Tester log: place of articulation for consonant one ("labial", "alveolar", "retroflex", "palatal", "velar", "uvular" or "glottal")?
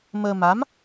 labial